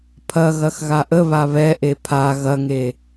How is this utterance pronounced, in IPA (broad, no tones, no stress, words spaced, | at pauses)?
pʰɐɣɐx ɣaʔə βaβɛ ʔepʰa ɣɐŋe